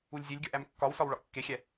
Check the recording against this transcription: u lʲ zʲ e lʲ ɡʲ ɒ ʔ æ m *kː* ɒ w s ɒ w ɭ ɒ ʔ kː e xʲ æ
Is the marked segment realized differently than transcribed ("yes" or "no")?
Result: no